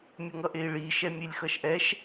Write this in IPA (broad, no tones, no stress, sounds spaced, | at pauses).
mʲ ʌ ŋ ʌ ʔ e i̯ ɭ i ʃ ɛ mʲ e lʲ x ʌ ʃ ʔ ɛ ʃ